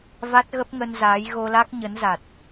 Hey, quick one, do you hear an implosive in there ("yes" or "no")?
no